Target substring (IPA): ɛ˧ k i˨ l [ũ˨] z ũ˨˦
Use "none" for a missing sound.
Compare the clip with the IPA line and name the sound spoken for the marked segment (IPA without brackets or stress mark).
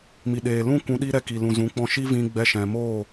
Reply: ũ˨